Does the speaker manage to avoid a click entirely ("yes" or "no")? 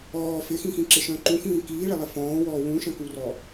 no